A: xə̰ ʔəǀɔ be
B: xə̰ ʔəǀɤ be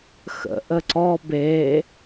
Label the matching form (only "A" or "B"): A